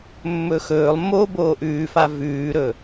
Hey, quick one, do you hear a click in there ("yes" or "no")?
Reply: no